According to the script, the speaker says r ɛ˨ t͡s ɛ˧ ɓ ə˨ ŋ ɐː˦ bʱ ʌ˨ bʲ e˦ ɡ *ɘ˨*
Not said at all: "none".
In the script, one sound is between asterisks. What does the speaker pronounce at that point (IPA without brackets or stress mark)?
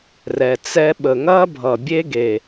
e˨